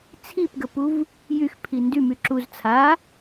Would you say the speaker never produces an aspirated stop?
no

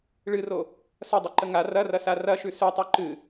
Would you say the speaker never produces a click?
no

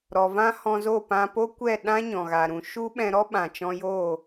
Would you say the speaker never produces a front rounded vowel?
yes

